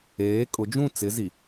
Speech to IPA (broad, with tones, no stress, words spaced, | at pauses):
eː˨˦kʼʊ˨˦d͡ʒũ˦˨ t͡sɪ˨˦ zi˨